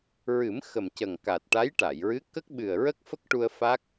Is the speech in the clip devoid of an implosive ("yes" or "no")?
no